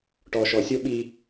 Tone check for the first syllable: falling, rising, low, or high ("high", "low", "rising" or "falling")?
low